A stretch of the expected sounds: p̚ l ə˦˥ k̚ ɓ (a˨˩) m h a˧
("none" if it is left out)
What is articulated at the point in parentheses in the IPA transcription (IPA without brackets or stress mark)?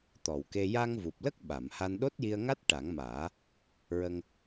a˨˩˨